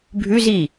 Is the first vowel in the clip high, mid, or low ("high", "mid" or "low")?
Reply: high